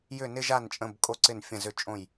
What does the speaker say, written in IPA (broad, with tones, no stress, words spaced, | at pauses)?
jʏ˥˧nɪ˥ʒa˥˧nt͡ʃʼə̃˧˥˧b kʼo˥ǀɪ˥˧n fʲə̃˥˧zʏ˥˧t͡ʃʼõ˥˧j